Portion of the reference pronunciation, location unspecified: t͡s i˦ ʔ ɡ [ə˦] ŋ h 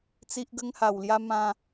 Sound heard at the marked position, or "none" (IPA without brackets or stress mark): ə˦